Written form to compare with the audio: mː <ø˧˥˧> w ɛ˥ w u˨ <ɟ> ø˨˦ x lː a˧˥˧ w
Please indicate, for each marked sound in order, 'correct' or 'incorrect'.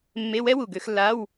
incorrect: e˧˥˧, incorrect: ɡ

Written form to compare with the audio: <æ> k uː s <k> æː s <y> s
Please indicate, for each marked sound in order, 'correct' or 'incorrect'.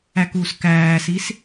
correct, correct, incorrect: i

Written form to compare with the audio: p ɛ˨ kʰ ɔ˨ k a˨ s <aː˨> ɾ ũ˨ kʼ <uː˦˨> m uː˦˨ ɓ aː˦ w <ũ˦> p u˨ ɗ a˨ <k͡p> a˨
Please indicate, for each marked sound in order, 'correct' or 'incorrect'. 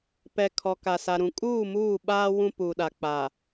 incorrect: a˨, correct, correct, correct

